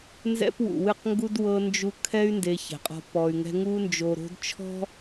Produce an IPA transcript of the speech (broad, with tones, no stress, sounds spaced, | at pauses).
n z ɛ̰˦ p w ṵ˨ w ɨ˦˨ q ŋ ɡ u˦ d w ɤ˧ n d͡ʒ u˧ kʰ ɛ˦ y̯ n d e˧ ç ɛ̤˨ qʼ ɔ̤˧ p ɔ˨ y̯ ŋ ɛ̤˧ ŋ u˧ n d͡ʒ o˨ ɾ o̤˧ d t͡ʃʰ ɔ̤˦